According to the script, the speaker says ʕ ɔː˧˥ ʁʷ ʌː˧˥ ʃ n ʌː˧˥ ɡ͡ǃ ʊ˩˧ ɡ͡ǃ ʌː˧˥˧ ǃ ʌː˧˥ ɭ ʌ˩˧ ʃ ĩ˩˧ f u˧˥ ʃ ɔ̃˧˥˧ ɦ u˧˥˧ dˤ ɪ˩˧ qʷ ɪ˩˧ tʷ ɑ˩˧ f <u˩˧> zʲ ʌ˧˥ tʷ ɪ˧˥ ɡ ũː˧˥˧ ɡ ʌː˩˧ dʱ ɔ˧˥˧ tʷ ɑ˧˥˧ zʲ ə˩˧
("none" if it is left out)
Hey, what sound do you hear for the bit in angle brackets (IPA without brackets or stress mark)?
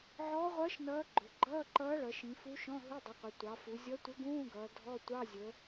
u˩˧